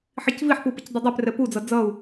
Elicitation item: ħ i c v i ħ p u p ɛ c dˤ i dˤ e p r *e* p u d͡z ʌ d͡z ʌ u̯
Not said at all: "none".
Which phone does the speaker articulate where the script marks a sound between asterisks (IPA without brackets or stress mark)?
ɛ